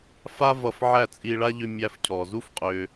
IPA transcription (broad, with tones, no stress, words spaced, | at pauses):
fa˦ vʌ˧fʕæ˦˨t͡sʼi˧ɭa˦ ʎʏ˧mʲæ˧fcʰɔ˨zu˦f qʼʏ˧